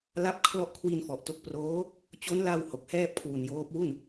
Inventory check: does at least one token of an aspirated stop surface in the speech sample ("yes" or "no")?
yes